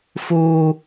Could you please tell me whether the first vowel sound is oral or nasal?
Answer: oral